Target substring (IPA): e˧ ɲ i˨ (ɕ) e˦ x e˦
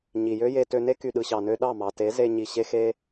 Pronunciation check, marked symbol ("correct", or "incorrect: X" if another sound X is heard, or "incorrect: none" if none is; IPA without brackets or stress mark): correct